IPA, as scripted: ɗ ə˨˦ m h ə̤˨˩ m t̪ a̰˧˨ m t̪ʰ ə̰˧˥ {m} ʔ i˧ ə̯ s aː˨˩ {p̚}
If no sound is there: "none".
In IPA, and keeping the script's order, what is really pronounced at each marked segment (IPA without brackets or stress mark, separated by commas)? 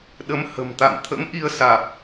m, p̚